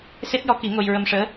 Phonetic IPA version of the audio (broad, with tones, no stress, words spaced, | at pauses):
se˦˥t̚jɔ˧˥ki˨˩˦ ŋo˧j ɹə˧mʂəː˧˥